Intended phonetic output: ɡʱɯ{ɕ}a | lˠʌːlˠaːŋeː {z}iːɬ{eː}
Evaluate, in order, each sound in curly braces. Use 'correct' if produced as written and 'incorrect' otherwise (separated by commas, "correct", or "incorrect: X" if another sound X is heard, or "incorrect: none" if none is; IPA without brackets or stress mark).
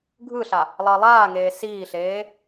incorrect: ɬ, incorrect: s, correct